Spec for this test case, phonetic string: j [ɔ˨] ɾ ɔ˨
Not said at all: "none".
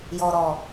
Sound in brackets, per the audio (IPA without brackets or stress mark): ɔ˨